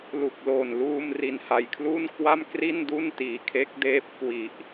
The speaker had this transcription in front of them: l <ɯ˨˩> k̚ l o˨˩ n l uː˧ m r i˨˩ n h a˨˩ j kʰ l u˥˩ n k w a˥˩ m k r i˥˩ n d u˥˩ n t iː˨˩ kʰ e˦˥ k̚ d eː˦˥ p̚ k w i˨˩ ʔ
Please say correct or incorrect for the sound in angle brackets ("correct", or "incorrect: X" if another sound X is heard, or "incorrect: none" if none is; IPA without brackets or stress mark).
incorrect: u˨˩